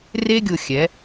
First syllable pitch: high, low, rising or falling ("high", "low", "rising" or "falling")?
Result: high